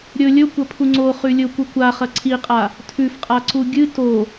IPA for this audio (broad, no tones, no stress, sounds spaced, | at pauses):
ɾʲ ɵ lʲ ɵ kʷ ɐ pʰ u ŋ͡ǀ o χ ʉ lʲ ɵ kʷ i kʷ a χ ɐ ǀʰ i qʼ a | tʰ ʉ f qʼ a ǀ u ɡʲ ɨ t o